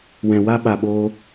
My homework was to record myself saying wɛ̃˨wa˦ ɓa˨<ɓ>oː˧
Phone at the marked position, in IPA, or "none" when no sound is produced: ɓ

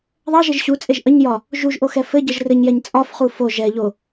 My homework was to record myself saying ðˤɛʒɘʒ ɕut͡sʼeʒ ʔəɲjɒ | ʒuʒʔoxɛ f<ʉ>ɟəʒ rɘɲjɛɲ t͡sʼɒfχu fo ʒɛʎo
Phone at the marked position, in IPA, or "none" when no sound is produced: ɘ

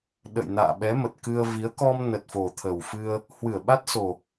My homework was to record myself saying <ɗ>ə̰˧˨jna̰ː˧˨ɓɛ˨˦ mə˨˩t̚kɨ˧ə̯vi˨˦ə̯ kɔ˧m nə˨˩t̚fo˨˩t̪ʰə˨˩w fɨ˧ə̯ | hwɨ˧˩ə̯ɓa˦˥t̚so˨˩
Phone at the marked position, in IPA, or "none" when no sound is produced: ɗ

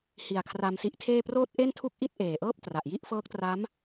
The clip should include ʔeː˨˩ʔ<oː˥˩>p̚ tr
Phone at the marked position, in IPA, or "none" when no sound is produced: ɤː˥˩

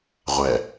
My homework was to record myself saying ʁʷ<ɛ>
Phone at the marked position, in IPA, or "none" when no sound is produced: ɛ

